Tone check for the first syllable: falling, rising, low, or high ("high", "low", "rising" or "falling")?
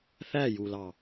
falling